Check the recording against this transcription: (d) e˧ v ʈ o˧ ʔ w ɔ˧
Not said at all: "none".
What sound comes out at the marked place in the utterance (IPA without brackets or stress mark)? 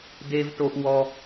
d